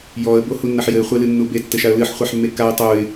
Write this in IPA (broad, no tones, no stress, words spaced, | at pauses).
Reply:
jɔə̯bohunːɐħ jɘɪ̯χʷelɨnːu betːɘʃaə̯ lɨħχʷaħmːe kaɪ̯ tˤuɪ̯